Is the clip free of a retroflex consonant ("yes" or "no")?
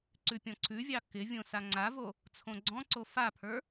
yes